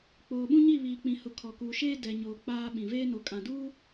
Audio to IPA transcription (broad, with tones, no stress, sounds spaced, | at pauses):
k͡p oː˨ ɓ ũ˦ ɲ i˦˨ β iː˨ k͡p ĩ˨ h ʊ˨ kʰ ɔ˨ k uː˨ ʃ eː˦ d ɛ˨ ɲ oː˨ k͡p aː˦ ɓ ĩ˨ v eː˦ n o˨ kʼ ã˨ d uː˦